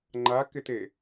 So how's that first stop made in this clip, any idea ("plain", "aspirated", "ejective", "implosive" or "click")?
click